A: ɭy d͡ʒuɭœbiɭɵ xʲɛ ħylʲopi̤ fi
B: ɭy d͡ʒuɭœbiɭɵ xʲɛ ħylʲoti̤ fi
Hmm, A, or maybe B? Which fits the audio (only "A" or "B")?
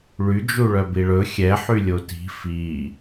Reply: B